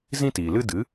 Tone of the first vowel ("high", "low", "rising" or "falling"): high